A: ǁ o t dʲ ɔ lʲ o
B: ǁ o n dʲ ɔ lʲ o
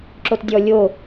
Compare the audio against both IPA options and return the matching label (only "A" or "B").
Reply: A